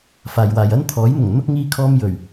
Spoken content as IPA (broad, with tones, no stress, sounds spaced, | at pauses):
f aː˨ j w aː˨ j ɐ˥ n t̪ʰ ɔː˨˥ j n̪ ʊ˨˩ ŋ n̪ ʊ˥ k̚ ŋ iː˥ kʰ ɔː˥ m j ɵ˨˩ ɥ